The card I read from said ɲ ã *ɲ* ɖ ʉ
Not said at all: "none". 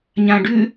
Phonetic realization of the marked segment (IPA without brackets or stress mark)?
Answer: none